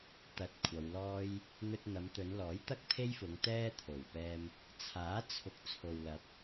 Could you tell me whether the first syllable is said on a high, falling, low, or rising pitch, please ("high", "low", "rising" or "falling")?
low